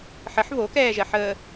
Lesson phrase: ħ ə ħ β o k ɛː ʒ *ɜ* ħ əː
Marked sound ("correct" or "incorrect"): correct